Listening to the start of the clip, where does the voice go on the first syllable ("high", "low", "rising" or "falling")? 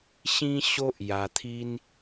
high